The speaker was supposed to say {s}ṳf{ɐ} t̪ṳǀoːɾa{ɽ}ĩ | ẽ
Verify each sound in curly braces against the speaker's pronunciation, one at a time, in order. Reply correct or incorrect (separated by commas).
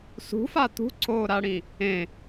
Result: correct, incorrect, correct